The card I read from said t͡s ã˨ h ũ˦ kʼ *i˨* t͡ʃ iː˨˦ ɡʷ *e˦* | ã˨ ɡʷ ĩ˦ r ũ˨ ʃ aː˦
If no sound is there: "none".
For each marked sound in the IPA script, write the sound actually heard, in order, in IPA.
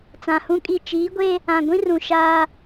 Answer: i˦˨, e˦

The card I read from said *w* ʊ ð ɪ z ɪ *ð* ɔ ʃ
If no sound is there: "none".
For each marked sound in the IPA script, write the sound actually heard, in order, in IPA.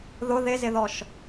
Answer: ð, ð

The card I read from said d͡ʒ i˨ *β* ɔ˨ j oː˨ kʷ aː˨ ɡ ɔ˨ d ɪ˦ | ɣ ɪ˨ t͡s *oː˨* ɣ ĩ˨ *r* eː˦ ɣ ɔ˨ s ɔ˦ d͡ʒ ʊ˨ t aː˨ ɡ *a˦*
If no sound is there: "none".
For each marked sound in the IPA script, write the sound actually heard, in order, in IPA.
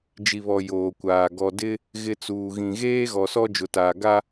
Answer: β, uː˨, ɣ, a˦

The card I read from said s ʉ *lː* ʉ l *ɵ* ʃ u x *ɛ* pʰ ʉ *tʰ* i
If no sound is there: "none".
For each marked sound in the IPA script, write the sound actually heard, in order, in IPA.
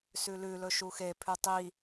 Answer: l, ɵ, e, tˤ

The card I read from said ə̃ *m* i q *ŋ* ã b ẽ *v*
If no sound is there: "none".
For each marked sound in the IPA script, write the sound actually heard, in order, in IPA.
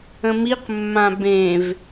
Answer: m, mː, v

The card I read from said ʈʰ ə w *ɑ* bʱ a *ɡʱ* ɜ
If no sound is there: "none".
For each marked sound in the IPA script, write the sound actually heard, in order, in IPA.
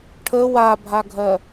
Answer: a, ɡʱ

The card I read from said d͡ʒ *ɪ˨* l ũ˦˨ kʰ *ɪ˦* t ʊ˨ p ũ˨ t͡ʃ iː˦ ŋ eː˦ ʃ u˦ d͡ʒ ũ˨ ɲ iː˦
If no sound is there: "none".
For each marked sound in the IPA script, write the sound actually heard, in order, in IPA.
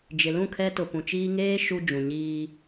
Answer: ɪ˨, ɛ˦

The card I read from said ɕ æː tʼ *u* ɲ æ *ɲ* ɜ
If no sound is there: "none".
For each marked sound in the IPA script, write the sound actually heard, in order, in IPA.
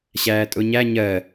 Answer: ʊ, ɲ

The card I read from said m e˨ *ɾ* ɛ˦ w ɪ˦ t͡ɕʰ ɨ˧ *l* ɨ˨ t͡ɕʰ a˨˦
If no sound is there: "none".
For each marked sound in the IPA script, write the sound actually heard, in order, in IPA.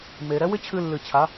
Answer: ɾ, lː

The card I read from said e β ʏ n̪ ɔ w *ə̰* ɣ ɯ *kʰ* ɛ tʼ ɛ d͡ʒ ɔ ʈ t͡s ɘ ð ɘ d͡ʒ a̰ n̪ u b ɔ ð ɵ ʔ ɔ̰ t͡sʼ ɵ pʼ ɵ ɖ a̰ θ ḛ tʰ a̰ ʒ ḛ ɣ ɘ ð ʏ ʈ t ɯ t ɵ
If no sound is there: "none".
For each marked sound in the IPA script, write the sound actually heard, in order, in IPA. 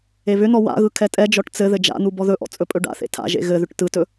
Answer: a̰, kʰ

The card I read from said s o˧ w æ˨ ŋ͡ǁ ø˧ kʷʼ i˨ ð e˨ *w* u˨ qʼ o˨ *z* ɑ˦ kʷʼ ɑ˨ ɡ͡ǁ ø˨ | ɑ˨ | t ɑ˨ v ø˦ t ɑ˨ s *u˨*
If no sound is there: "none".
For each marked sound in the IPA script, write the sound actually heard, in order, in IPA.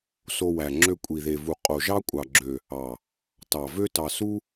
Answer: v, ʒ, u˦

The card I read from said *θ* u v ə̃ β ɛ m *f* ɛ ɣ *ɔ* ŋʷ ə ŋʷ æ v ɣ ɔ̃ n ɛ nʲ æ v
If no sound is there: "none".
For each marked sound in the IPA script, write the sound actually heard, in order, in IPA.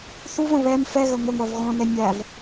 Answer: θ, f, ə

